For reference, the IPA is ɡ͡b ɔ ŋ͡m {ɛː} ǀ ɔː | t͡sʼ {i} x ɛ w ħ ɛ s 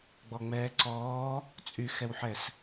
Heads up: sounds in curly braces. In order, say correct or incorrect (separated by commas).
correct, incorrect